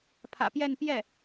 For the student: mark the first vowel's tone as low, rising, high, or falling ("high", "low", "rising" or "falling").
low